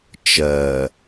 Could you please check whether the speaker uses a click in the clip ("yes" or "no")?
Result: no